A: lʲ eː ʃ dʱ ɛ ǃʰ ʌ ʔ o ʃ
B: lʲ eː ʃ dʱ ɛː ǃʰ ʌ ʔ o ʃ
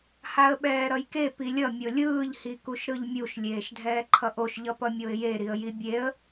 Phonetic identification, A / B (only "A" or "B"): B